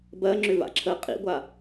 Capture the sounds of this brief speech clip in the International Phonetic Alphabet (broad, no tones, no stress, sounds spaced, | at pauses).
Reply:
b ɜ ŋ͡ǁ ʏ v a̰ ǁʰ ə qʼ ḭ ɡʷ a